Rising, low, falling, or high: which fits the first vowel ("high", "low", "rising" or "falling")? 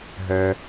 low